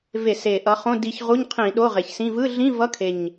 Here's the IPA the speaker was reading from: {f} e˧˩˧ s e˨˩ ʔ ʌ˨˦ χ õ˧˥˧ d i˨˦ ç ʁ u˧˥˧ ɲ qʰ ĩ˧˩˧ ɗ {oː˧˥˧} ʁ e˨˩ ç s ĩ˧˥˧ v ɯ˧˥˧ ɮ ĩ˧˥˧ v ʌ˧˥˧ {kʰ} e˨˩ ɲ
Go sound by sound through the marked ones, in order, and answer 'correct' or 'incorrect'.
incorrect, incorrect, correct

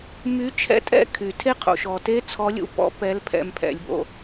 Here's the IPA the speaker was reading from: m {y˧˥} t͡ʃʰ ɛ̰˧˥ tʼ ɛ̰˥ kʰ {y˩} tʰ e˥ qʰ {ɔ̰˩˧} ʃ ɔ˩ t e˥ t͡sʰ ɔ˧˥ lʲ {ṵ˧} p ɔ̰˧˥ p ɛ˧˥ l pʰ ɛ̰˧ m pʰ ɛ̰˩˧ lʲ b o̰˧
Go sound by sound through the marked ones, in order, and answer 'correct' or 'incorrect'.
correct, correct, incorrect, correct

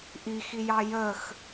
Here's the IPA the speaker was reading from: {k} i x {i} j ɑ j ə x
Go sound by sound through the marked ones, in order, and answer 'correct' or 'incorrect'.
incorrect, correct

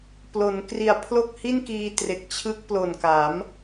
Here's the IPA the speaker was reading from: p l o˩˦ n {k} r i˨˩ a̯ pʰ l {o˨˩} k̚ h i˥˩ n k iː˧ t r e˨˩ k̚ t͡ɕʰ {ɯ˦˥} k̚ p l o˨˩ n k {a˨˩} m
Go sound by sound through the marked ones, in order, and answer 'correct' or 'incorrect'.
correct, incorrect, correct, incorrect

